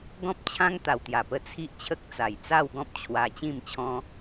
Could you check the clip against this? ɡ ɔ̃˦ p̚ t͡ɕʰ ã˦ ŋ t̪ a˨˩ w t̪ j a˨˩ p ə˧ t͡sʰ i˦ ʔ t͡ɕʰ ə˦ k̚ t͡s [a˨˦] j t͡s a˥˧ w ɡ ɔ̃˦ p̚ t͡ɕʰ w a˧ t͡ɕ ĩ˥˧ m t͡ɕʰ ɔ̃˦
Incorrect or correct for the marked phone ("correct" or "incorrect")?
incorrect